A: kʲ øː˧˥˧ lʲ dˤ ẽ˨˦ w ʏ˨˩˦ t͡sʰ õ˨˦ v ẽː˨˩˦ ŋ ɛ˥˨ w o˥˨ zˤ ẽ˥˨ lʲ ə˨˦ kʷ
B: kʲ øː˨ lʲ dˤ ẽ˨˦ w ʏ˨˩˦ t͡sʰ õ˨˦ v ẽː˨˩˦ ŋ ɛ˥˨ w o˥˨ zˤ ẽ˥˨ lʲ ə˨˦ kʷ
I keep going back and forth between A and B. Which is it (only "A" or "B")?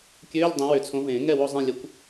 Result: A